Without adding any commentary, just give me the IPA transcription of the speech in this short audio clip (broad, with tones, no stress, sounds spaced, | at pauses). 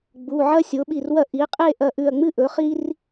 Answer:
ɡ͡b u˩˧˩ ʕ ɐ˦ sʲ o˩˥ ɓ i˧˩ r w ɐ˥˩ ʔ i˩˥ qʼ e˥˩ ʔ ɐ˧˩ ʔ ʉ˧˩ ɐ̯ ŋ͡m ɨ˦ ʔ ɵ˩˥ χ i˦ r